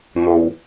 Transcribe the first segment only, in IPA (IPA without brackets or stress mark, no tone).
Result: n̪